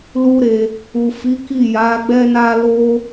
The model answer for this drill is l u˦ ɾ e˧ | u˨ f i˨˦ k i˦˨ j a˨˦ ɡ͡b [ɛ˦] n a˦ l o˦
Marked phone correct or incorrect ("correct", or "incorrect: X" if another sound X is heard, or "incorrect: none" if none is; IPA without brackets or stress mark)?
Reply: correct